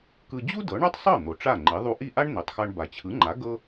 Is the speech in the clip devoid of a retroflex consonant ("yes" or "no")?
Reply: no